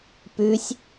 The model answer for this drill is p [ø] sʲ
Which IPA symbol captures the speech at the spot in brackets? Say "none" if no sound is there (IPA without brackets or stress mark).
ʉ